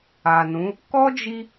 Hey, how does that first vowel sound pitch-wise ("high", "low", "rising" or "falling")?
low